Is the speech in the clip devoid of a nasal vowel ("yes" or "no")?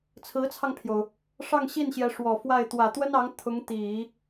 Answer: yes